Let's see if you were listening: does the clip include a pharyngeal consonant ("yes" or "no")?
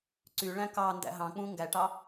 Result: no